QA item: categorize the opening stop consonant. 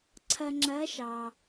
click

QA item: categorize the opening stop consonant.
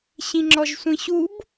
click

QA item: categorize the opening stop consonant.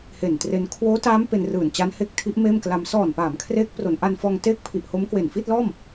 plain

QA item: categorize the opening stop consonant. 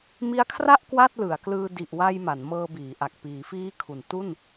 aspirated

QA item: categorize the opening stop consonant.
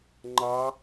click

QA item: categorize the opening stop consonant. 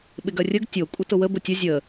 implosive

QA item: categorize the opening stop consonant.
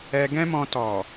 plain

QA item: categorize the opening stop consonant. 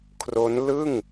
aspirated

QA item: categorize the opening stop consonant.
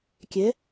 plain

